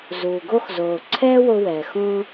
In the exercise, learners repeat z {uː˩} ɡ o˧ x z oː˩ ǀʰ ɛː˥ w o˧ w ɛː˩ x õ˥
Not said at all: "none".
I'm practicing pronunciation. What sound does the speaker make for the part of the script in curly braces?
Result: uː˩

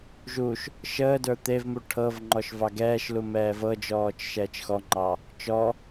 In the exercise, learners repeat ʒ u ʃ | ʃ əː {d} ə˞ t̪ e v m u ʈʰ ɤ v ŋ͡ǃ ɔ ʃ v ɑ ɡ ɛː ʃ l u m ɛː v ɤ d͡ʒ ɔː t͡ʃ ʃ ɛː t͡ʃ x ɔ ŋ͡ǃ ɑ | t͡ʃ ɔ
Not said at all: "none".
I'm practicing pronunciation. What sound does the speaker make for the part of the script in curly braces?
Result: d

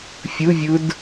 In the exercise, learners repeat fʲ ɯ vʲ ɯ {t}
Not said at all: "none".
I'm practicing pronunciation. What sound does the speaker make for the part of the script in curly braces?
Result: d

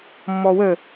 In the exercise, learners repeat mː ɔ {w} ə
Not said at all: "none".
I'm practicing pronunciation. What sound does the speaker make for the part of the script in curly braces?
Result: w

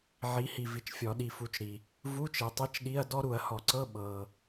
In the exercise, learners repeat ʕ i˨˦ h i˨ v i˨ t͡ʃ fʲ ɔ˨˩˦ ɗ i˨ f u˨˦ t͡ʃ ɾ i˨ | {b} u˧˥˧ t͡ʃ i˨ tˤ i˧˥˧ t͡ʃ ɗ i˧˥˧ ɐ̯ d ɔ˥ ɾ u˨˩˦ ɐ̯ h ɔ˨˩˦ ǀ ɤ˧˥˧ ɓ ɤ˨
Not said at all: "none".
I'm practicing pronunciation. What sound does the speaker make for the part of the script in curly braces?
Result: v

